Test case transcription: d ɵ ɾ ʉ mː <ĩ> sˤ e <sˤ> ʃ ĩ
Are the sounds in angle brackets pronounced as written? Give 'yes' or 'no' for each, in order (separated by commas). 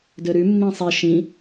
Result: yes, no